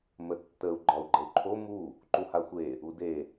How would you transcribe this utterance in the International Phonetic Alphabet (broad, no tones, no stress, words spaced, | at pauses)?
mətːəu̯ ɡ͡ǃɒu̯ɡ͡ǃəu̯ǃʰo mu | ǃuhaxʷe | ude